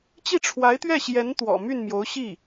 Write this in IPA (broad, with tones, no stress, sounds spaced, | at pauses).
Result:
t͡ɕ i˥˩ ʈ͡ʂʰ w a˧˥ ɪ̯ t̪ ɥ ɛ˥˩ ɕ j ɛ˧˥ n t̪ w ɔ̰˨˩ m y˥˩ n m j o˧˥ ʊ̯ ɕ i˥˩